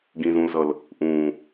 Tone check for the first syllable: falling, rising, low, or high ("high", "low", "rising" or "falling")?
low